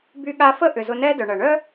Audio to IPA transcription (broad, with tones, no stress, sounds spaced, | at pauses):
b y˧ ɠ a˧ f ə˥ ʔ ʏ˩ z ʊ˧ n ɛ˥ d œ˩ ɳ ɐ˩ ɳ œ˥